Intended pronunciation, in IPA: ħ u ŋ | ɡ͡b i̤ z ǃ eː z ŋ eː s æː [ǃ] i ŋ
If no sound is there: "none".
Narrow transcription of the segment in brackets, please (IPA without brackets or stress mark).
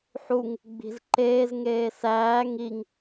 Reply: ŋ